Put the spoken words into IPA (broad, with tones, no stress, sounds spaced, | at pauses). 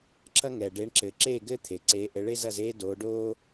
ǁ ɐ˥ ŋ ɛː˩ ɖ e˨˦ ɳ ǁ ɘː˩ ǁ eː˥˨ ɡ ɘː˥ t̪ʰ e˩ ǀ eː˨˦ ʔ ɘ˨˦ ɭ e˥ z ɐ˥˨ z eː˥ d oː˨˦ ɖ oː˥